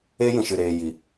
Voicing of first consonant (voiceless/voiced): voiced